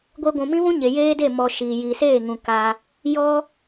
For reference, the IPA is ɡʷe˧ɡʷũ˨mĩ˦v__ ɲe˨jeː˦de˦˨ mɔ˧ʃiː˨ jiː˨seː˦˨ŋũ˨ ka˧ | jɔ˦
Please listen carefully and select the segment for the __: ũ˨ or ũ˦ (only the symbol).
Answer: ũ˦